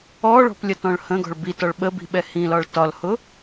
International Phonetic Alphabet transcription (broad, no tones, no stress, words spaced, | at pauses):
ɔɭɔ̤plʲətɔ̃ɭ hə̃ɡɔ̤ɭ bitɒɭ ɓəbi̤ɓɛ hĩlɒɭ tɒlhʊ